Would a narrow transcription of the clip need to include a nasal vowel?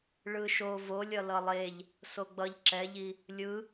no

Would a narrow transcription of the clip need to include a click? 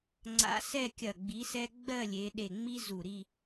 yes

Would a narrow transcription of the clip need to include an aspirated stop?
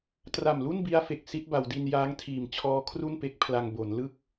yes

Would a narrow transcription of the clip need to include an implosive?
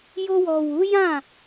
no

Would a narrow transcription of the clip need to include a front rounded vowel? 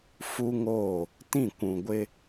no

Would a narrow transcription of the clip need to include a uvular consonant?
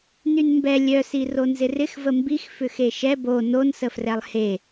no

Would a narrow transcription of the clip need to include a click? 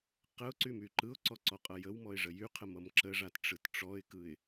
yes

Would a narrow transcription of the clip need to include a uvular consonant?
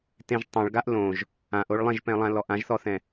no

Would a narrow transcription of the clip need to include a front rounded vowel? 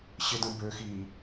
yes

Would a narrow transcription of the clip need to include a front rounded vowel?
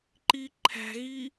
no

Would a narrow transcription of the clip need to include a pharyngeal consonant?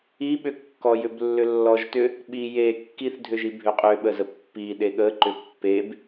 no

